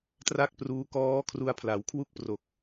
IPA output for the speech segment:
t r a˥˩ k̚ p r uː˦˥ k ɔː˦˥ kʰ r u˧ a̯ pʰ l a˩˦ w kʰ w u˥˩ k̚ p r o˨˩ k̚

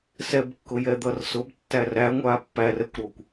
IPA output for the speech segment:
s ɛ b kː ʊ j ɛ d̪ ʌ r s ʊ b tː æ r æ ŋʷ aː pː æ r ɛ kʷ ɾ ɔ kʷ

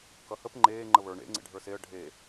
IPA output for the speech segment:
k ʌ h ə p ŋ͡ǃ eː ŋ͡ǃ ə β ə˞ ɳ ḛ ŋ͡ǀ ḛ ɖʱ ə˞ s e ə̯ ɖʱ e

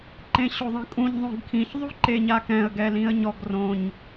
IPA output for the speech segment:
ǃ ẽ ɕ o ðˤ ẽ kʼ ũ ɲ ðˤ õ ɡ kʰ ĩ ç ðˤ u ǃ e ɲ a k ɛ̃ ə̯ ɡ ɛ l ĩ ə̯ ɲ ɔ ɡ r õ ɲ

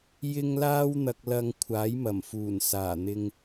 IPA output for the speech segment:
j ɪ˥ ŋ l aː˥ w n̪ ɐ˧ k̚ l ɐ˧ ŋ kʷʰ aː˨˥ j m ɐ˨˩ m f uː˨˩ n s aː˨˩ n̪ ɪ˧ ŋ

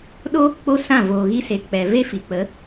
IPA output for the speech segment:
ɗ o˦ | k͡p o˦ s ã˦˨ v oː˨ ɣ i˧ s e˨ k͡p ɛ˨ v e˦ f i˨ k͡p ə˨˦

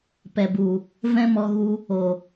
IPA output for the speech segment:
p ɛ˨ b u˨ | v ɛ̃˦ m ɔ˧ ɣ u˧ | o˨

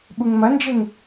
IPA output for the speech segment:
ɓ u ŋ m ɐ n d͡ʒ e ŋ

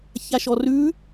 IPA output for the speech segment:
ç a ʃ ɔ r ʉ

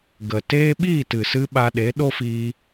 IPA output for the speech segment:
ɡ ə˨ t eː˦ ɓ iː˦˨ t ɨ˨ s ɨ˧ ɓ a˧ ɗ e˨˦ ɗ o˦ f iː˧

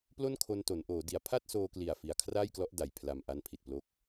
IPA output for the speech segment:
p l o˥˩ n kʰ o˧ n t o˩˦ n ʔ oː˩˦ d i˩˦ a̯ pʰ a˥˩ t̚ s oː˧ k l i˨˩ a̯ f i˨˩ a̯ kʰ r aː˥˩ j k l ɔ˦˥ ʔ d a˨˩ j pʰ l a˨˩ m ʔ a˧ n pʰ i˨˩ t̚ p l o˦˥ k̚

